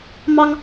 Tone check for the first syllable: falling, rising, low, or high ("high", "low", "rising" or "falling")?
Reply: high